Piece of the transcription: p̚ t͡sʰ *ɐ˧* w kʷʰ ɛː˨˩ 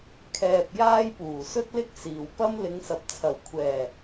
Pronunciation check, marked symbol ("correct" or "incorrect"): incorrect